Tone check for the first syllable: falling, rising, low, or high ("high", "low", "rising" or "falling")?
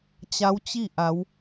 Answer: rising